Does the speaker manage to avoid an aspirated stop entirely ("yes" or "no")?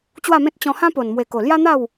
yes